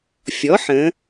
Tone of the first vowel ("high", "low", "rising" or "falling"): rising